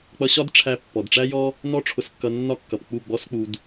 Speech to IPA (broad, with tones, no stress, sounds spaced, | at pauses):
k͡p ʌ˧ ɕ ɒ˦ d ʈ͡ʂʰ æ˧ pː ɔ˨ d ʈ͡ʂ æ˦ j ɔ˦ | n ɔ˦ ʈ͡ʂʰ ʊ˧ s kː ʌ˧ nː ɒ˦ kː ʌ˨ p k͡p u˦˨ ɡ͡b ɔ˦ s k͡p u˧ d